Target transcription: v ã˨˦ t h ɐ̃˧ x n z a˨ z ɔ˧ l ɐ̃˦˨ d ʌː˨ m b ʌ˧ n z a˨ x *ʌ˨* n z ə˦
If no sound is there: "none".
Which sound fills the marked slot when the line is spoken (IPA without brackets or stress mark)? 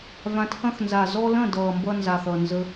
ʌ˨